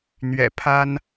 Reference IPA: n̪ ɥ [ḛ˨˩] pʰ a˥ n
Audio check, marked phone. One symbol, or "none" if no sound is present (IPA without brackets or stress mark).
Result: ɛ̰˨˩